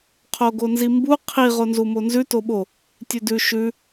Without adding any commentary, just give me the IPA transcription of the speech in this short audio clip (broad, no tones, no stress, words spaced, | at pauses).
qʰoɡonzimbu qʰi ʁonzumonzʉ toɓo | tʲʉdʉ ʃʉ